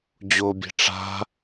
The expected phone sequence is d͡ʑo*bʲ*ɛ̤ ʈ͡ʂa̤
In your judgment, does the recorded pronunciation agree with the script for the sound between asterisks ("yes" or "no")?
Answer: yes